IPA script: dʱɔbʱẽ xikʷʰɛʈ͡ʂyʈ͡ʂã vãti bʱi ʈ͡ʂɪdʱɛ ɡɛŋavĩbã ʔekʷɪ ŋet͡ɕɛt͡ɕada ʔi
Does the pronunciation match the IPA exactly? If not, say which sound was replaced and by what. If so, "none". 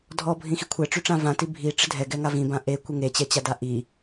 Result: ẽ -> ĩ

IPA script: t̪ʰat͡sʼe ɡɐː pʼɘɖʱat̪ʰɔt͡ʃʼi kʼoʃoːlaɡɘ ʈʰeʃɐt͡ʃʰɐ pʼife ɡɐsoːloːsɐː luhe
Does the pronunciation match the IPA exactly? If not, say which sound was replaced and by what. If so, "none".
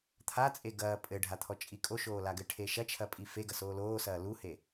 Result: none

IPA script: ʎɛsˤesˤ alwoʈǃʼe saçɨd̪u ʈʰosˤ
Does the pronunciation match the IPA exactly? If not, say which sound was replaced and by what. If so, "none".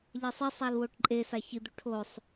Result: none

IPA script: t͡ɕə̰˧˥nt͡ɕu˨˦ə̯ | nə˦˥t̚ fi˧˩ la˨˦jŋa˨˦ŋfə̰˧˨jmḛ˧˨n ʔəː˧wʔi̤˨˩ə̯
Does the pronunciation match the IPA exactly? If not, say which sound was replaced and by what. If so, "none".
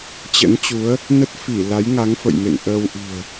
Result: none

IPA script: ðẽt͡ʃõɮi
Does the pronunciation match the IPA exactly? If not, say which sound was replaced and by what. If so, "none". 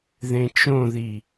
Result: ɮ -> ð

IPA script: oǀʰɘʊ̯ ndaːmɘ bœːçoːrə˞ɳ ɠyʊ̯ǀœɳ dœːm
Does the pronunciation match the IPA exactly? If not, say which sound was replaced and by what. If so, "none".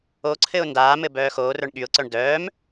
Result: ç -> x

